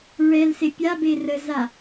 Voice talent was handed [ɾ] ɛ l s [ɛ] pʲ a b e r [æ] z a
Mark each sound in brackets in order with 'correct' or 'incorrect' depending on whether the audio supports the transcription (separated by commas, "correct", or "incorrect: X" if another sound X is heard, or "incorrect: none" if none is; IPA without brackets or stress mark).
incorrect: ɹ, incorrect: e, incorrect: ə